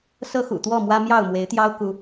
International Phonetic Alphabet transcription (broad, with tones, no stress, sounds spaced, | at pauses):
s ɤ˦ x ṵ˨˩ t̪ w ɔ˥˨ m w ä˦ m j ɑ˥˨ ʊ̯ m w e˨˦ ɪ̯ t̪ j ɑ˦ ʊ̯ k u˦